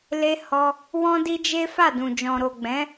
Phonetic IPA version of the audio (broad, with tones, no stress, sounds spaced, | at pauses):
l e˧ h ɔ˧ | w ɔ̃˦ d i˦ d͡ʒ e˦ f a˦˨ d ũ˨ d͡ʒ ɔ̃˨ ɾ o˨ ɡ͡b ɛ̃˨˦